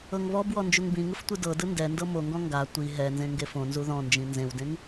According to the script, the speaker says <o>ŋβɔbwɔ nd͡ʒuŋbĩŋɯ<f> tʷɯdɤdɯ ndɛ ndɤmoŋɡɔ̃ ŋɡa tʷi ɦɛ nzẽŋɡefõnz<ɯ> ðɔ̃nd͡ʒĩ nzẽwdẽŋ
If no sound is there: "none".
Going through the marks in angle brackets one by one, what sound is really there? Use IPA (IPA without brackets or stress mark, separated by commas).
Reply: ɤ, f, u